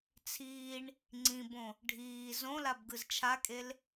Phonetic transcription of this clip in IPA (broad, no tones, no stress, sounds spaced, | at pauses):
t͡sʰ iː ɳ | ŋ͡ǀ ĩ b õ | ɖʱ iː z õ l a b ɡ ɯ z t͡ʃʰ a kʼ e l